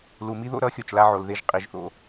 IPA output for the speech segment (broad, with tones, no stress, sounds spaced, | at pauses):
l u˩˧ m i˥ ð o̰˥ ɾ ʌ˧˥ xʲ o˩ t͡ʃ l a˧ ʕ o˩ l ð e˧ ʒ qʼ i˩˧ ʒ θ o̰˧